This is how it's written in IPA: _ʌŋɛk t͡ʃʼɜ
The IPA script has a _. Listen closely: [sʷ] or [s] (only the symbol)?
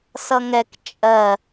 s